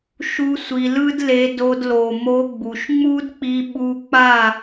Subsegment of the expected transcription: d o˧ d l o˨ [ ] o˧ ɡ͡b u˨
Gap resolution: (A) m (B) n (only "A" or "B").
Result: A